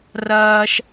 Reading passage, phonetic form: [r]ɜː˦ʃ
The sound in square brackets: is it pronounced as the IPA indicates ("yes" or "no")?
yes